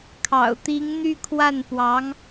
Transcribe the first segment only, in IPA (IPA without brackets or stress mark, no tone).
kʰ